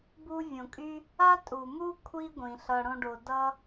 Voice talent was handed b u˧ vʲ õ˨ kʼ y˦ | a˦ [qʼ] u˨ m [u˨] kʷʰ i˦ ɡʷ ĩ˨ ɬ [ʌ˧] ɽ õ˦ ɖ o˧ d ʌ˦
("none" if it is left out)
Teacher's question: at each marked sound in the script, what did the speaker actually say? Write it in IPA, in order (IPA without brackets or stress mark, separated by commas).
tʼ, u˦, ʌ˧